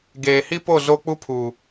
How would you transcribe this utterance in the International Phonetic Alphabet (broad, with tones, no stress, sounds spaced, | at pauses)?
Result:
ɡ eː˨ h i˦ p o˦˨ z o˦ k͡p u˦ pʰ u˨